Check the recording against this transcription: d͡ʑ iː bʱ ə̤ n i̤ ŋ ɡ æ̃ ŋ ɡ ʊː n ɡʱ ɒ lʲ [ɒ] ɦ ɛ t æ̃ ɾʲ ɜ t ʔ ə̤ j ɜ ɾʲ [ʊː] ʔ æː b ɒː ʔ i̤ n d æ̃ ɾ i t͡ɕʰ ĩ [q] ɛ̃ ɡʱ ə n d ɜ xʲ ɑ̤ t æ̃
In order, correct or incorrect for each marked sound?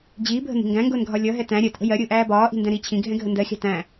incorrect: ʌ, correct, incorrect: ɡʱ

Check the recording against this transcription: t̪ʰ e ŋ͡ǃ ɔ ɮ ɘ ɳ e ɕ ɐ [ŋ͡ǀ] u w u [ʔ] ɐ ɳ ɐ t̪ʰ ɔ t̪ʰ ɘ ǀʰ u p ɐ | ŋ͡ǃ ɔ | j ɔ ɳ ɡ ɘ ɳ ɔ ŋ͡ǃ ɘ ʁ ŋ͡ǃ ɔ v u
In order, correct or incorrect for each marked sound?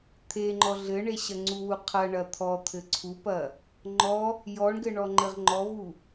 correct, incorrect: qʰ

